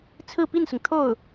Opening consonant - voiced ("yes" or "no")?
no